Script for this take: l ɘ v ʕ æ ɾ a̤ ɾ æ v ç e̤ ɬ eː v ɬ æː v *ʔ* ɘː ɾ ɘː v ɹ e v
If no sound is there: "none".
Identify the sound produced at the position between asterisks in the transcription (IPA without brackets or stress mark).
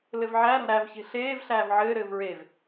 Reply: ʕ